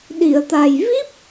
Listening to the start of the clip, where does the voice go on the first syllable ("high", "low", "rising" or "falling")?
low